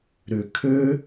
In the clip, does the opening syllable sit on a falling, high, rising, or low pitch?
low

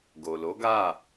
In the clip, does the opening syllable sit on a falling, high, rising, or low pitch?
low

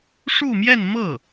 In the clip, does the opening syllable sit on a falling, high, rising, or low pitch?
falling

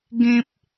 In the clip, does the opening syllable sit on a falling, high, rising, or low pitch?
high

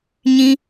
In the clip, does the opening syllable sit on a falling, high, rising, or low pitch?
high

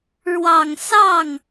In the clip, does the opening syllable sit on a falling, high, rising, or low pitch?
low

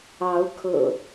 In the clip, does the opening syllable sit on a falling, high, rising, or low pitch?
rising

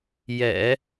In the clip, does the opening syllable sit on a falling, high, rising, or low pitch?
low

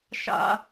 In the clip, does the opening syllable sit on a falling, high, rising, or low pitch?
high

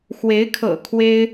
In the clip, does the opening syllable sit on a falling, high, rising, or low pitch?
rising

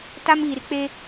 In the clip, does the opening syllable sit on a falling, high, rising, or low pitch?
high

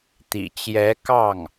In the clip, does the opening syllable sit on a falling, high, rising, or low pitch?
low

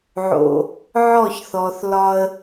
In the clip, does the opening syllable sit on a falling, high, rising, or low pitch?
low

